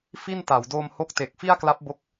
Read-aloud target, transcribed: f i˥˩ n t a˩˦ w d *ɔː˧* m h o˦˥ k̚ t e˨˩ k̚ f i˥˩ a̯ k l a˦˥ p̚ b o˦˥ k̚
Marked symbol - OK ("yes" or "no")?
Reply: no